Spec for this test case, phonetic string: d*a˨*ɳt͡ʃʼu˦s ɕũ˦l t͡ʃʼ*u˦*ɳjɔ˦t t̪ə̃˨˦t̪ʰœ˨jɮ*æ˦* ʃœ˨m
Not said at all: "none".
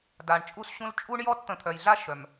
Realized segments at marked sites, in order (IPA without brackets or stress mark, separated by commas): a˨, u˦, a˦